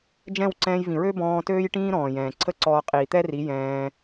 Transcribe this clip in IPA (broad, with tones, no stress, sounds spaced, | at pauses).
d͡ʒ ɛ̃˦˨ w ǀ ɛ̃ː˧ j v ĩ˨ ɹ ø˦ b ɔ̃ː˧ t øː˦ j ʈ ĩː˦ ɾ ɔ̃ː˨ j ɛ̃ː˨ ǀʰ ə˦ ǀ ɔː˧ qʼ iː˨ t̪ ɛ˦ r i˨˦ j ɛ̃ː˧